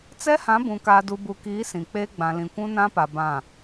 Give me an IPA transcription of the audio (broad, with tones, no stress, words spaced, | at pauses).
t͡sɛ˦hã˨˦bũ˨ kaː˨du˨bu˨kiː˨˦ sĩ˨k͡peː˦ ɡ͡bã˨lĩ˨kʷũ˦ nã˦pa˨ bã˦˨